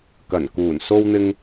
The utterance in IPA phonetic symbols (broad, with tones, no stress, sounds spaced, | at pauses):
k ɐ˨˩ n k uː˨˩ n s o˧ w n̪ ɪ˧ ŋ